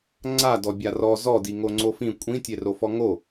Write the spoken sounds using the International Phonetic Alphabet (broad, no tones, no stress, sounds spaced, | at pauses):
ŋ͡ǀ a d ɔ bʲ a r ɔ z ɔ d i ŋ o ŋ͡ǀ o f ĩ kʷʼ ĩ tʲ e r o f ɔ ŋ o